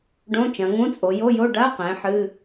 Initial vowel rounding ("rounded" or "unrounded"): rounded